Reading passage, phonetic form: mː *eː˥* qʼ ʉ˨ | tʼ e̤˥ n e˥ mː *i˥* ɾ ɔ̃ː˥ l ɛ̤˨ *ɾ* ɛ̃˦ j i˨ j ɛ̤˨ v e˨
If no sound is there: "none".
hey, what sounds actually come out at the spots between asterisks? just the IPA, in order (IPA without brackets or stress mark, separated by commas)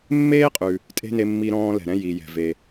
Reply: eː˥, i˥, ɾ